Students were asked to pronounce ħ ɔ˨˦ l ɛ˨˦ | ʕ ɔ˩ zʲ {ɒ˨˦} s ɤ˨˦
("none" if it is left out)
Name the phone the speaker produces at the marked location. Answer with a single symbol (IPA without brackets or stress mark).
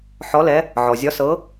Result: ɒ˨˦